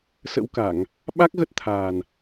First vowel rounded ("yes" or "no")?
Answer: no